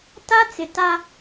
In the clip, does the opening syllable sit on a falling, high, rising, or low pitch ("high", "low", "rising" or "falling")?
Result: high